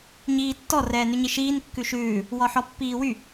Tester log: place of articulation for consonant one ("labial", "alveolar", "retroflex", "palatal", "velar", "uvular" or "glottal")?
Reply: palatal